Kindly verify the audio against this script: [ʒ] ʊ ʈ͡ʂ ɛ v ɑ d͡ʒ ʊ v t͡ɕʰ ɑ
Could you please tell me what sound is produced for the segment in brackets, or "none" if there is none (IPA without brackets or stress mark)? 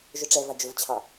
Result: ʒ